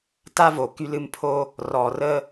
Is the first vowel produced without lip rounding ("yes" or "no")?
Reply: yes